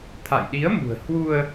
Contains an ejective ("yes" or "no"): no